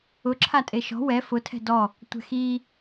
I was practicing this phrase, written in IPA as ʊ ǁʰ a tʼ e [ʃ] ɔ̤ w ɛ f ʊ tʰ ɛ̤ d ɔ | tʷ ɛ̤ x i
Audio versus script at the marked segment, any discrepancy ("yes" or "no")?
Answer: no